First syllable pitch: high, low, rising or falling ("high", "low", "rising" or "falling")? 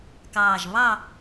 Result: low